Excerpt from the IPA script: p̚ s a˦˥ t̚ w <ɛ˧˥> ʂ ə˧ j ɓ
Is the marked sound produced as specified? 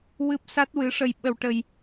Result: no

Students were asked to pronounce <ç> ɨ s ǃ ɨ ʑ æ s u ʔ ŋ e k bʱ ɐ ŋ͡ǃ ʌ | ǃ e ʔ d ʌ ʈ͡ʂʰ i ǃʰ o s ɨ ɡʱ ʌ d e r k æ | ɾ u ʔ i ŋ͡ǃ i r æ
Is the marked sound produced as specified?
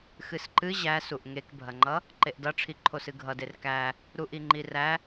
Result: no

